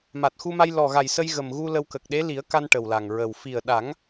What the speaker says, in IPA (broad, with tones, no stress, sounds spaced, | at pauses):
m a˨˩ t̚ x u˧ m a˧ j l ɔ˨˩ ɣ a˨˩ j s ə˧ j ɣ ə˨˩ m ɣ u˧ l ə˧ w k ə˨˩ k̚ ɗ e˧˥ l i˨˩˦ ə̯ k a˧ n ʈ ə˨˩ w l a˨˩ ŋ ɹ ə˨˩ w f i˨˩ ə̯ ɗ a˨˩˦ ŋ